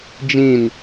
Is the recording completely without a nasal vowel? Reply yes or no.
no